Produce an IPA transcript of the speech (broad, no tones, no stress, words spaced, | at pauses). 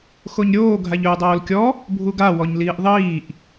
xoɲɾʲoː ɡʱaʎɵːdˤoːlkʲɔ | bʱuɡa wɔɲliːʔðˤiːʔ